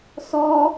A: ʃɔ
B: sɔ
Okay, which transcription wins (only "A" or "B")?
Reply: B